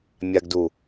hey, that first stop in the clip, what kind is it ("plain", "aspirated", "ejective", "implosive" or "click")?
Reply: plain